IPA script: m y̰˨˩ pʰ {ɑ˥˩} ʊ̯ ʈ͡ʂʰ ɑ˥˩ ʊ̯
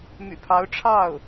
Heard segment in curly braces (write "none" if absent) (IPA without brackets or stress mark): ɑ˧˥